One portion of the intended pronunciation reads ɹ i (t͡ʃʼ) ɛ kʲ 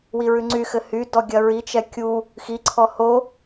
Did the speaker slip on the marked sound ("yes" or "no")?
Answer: yes